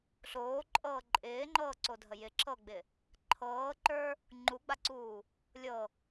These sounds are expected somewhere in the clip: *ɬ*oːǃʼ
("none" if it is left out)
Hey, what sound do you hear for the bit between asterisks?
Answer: ɬ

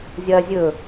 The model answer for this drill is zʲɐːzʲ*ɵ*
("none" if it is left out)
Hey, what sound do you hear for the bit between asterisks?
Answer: ɵ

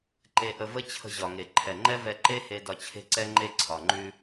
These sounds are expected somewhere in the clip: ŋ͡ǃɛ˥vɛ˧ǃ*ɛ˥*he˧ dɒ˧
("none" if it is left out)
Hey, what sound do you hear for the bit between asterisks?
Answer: e˥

